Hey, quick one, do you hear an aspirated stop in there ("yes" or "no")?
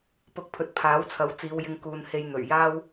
yes